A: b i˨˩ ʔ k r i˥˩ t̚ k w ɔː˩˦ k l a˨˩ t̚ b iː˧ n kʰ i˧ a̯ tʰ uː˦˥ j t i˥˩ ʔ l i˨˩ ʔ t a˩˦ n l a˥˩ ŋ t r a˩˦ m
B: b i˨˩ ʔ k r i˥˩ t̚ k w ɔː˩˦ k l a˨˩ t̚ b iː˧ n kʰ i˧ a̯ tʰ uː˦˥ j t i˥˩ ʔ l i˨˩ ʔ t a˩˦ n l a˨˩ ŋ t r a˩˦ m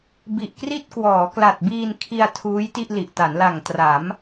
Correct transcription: B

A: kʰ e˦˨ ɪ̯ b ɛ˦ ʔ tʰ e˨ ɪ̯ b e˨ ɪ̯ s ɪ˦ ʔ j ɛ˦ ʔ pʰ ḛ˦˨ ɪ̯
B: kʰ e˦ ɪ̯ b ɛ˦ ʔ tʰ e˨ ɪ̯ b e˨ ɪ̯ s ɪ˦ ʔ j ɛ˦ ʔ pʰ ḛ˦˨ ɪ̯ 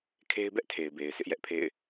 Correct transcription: B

